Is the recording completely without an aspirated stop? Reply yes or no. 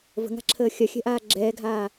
no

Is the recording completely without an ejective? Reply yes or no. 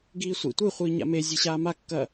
yes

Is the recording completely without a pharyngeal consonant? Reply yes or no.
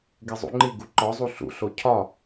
yes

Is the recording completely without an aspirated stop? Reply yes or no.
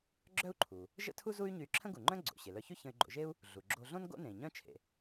no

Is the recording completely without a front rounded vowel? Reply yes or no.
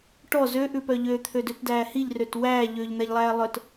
no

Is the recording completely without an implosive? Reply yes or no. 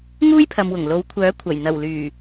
yes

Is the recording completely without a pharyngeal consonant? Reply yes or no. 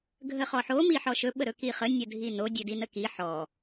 no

